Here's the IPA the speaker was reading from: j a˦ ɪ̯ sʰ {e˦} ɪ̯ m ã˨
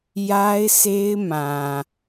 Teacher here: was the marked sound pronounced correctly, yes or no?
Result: yes